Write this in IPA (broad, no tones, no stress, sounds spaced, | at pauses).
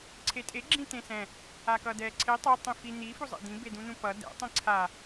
ǀʰ e tʼ e ɡ͡ǁ ĩ t̪ ẽ s ɛ̃ | a k ʌ d̪ ɛ ǀʰ e tˤ ɛ tˤ ĩ f i n̪ i f u zˤ ḛ d̪ ĩ b e d̪ ũ n̪ ũ p ʌ d ɛ̰ tˤ ĩ ǀʰ a